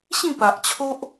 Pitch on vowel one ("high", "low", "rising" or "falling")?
falling